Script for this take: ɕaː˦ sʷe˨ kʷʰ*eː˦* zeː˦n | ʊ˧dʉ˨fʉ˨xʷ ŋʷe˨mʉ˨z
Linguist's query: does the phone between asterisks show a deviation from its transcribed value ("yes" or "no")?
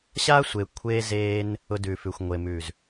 no